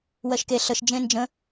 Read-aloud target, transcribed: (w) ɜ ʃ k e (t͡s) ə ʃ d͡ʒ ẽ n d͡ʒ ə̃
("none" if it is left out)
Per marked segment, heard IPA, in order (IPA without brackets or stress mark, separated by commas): w, ɬ